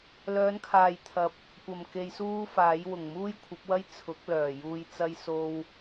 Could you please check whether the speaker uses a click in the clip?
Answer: no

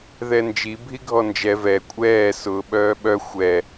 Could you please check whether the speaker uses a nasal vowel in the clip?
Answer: no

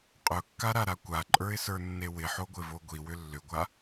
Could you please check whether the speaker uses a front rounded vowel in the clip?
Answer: yes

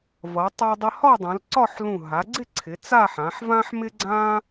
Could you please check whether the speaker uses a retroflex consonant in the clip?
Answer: no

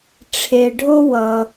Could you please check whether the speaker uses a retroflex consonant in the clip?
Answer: yes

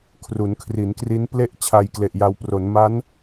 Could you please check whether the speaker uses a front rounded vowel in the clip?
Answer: no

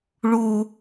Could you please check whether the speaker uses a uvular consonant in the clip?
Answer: no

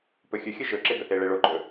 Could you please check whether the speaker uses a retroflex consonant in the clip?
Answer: yes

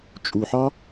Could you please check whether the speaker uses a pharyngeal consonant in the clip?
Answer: yes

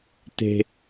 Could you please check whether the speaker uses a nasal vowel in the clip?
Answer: no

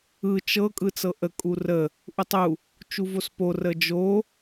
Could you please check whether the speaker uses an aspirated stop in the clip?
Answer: no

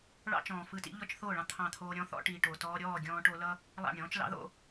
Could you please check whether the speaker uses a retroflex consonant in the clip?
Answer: yes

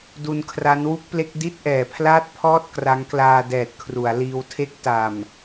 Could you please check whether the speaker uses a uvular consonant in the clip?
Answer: no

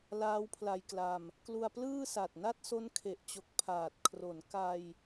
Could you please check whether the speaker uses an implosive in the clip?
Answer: no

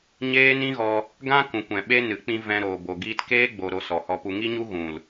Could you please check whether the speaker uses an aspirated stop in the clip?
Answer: no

